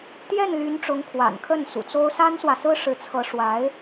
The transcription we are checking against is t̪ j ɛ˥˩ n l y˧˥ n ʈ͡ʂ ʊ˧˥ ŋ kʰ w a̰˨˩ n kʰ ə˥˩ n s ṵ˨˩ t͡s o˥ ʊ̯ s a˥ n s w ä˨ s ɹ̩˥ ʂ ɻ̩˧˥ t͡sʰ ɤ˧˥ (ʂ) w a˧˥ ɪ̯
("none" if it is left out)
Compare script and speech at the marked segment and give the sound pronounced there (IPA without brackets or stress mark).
ʂ